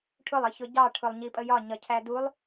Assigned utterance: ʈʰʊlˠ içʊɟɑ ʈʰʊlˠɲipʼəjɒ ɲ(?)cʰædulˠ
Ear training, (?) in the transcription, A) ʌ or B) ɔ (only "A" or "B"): A